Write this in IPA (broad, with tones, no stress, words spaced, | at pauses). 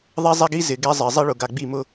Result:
ðˤɛ˦zˤɛ˦ɡi˦ zɪ˨ɡɛ˦zˤɪ˨ zˤi˦ɭʊ˨ɡa˨ ɡ͡bi˦˨mʊ˦